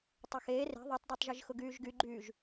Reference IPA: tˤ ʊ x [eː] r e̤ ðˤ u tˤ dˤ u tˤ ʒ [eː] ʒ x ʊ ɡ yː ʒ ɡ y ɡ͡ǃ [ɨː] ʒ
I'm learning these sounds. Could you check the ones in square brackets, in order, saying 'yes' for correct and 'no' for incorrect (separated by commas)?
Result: yes, no, no